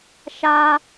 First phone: ʃ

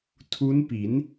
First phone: tʰ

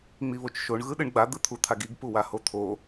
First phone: ŋ͡m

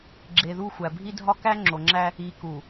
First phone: ɡ͡ǁ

